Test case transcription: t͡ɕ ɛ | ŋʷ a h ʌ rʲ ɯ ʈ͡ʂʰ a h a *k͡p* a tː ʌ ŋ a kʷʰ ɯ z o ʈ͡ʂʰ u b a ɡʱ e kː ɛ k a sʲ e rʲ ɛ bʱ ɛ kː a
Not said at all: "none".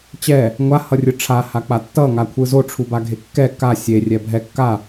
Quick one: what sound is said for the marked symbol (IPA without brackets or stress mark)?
k͡p